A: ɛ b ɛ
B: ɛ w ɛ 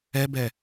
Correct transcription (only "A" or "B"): A